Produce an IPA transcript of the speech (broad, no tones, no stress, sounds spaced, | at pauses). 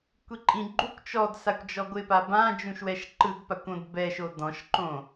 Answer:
kʷ i ǃʼ ĩ ɡ͡ǃ u kʷ t͡ʃ ɔ d s a kʷ d͡ʒ ɔ ɡʷ ɪ p a b ã d͡ʒ ũ ʃ w ɛ ʃ ǃ ɯ d p a kʷ õ d b ɛ ʃ o d ɔ̃ ʃ ǃ õ